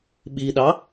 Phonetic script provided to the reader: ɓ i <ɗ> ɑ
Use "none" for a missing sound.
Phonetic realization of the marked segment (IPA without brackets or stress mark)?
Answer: ɗ